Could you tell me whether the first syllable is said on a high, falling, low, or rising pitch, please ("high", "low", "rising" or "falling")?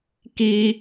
high